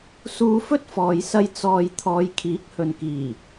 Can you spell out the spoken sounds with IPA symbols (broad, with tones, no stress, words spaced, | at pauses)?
suː˧fɵ˥t̚fɔː˨jsɐ˧j t͡sɔː˨j t̪ʰɔː˨˧jkʰiː˨˥k̚hɵ˨nkiː˨˩